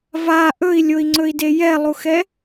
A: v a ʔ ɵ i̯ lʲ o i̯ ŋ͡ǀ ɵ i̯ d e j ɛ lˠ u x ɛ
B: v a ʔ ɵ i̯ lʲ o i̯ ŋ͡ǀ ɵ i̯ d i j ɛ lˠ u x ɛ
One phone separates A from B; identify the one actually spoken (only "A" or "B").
A